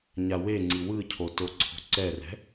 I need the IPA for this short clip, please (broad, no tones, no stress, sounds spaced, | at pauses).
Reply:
ɲ a w e ŋ͡ǀ i w ɯ cʰ o t o ǀʰ o̤ ǀ ɛ r ɛ̤